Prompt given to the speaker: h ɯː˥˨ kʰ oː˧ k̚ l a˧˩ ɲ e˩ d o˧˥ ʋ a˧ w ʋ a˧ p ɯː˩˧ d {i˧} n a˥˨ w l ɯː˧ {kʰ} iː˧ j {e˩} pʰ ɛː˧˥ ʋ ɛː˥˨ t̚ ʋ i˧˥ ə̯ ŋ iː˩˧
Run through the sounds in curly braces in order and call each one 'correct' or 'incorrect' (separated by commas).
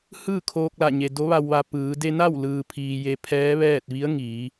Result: incorrect, incorrect, incorrect